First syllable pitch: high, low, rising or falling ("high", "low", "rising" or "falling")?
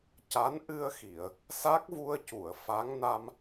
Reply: rising